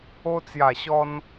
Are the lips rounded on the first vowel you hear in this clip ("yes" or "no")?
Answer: yes